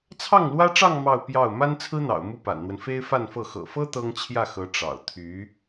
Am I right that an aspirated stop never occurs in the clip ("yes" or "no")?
no